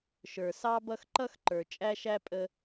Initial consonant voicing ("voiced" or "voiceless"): voiceless